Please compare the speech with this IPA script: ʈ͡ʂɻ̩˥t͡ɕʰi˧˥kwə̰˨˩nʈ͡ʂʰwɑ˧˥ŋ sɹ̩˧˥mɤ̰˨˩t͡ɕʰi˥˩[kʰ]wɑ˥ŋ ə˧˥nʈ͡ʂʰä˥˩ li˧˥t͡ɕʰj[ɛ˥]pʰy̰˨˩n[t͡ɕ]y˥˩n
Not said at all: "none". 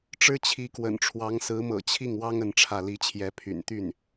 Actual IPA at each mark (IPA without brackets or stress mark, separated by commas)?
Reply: ŋ, ɛ˧˥, t̪